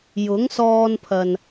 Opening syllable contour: rising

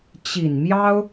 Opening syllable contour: low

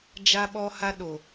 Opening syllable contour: high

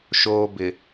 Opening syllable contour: low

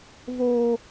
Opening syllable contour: high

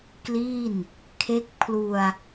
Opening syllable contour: falling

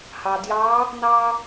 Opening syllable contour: low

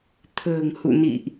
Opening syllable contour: low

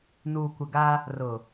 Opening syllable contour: low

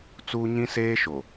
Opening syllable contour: high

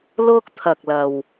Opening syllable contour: high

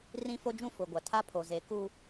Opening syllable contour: high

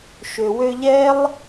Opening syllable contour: low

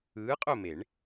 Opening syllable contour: rising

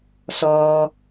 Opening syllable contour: high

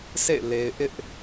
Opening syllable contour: falling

